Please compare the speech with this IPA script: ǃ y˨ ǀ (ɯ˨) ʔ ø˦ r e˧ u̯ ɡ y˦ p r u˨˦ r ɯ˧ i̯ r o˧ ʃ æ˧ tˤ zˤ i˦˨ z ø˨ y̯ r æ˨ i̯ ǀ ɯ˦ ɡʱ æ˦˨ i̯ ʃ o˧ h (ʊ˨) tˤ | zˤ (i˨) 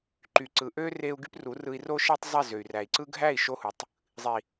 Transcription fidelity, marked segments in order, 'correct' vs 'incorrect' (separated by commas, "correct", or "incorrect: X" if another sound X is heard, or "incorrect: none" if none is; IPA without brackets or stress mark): correct, incorrect: u˨, correct